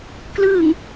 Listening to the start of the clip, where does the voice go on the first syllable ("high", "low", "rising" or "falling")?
low